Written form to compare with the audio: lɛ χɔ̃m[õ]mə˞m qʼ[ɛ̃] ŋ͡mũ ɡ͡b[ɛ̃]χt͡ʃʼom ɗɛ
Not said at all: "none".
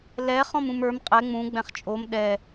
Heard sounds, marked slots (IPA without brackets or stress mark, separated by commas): ũ, ɛ, ɛ̃